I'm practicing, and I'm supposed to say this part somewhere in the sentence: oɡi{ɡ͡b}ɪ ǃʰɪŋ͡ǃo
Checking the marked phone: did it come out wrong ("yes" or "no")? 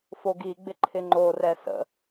no